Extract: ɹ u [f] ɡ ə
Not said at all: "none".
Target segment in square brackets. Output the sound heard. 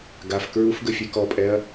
f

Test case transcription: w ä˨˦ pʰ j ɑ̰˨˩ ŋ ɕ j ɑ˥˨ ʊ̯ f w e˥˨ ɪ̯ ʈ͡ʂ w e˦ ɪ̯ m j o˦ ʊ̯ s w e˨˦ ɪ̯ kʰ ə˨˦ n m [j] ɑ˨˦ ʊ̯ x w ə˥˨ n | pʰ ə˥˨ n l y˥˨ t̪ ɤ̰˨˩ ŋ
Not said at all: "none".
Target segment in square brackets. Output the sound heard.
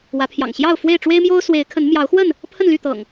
j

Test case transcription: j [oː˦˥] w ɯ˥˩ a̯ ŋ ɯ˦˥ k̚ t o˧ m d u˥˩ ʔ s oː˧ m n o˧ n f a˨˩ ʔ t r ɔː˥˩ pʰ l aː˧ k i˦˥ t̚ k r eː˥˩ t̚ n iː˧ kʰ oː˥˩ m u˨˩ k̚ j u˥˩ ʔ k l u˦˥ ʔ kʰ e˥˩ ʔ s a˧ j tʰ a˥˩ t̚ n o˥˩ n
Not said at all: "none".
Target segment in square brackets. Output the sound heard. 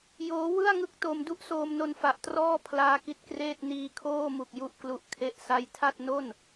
oː˦˥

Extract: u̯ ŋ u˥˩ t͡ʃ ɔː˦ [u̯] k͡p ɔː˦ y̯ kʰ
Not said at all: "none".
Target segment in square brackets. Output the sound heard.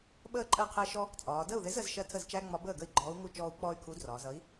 u̯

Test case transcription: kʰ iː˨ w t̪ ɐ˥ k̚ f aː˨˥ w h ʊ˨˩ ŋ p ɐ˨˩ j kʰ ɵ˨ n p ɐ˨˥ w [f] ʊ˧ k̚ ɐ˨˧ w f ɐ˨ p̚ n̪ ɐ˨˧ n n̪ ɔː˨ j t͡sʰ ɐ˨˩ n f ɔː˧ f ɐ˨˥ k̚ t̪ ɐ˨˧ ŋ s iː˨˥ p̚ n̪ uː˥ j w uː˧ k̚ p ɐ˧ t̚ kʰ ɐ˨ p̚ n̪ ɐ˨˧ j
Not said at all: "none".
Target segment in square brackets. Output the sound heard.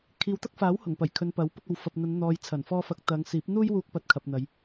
p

